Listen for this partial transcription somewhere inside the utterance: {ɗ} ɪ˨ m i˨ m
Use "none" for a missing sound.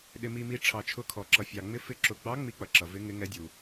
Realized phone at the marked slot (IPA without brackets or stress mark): ɗ